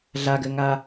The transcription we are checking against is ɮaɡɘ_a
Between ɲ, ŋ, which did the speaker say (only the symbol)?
ŋ